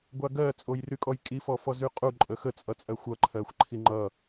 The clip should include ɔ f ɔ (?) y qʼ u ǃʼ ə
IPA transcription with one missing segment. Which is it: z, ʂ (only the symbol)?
z